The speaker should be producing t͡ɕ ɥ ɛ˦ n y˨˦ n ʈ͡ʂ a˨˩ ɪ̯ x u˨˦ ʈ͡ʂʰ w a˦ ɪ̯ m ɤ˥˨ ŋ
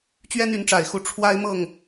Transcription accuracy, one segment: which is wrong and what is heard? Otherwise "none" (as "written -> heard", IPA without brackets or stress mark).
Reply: none